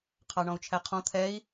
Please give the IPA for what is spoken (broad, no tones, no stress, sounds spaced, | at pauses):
qʰ ɑ ɳ ɔ̃ u̯ t͡ʃʰ æ qʰ ɔ̃ t̪ʰ ɛ i̯